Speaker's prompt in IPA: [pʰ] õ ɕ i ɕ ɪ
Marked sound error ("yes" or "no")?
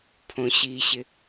no